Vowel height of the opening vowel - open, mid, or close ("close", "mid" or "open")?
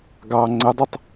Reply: open